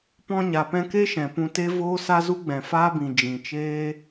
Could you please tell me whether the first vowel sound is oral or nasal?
nasal